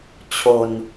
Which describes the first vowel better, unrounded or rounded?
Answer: rounded